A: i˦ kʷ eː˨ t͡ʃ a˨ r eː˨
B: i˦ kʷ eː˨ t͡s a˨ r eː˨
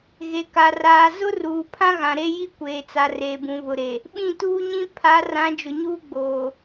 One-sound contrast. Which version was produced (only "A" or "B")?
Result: B